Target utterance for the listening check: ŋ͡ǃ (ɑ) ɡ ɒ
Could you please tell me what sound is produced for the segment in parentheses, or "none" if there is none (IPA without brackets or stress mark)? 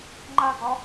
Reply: a